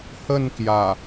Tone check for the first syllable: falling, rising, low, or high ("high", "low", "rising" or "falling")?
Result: falling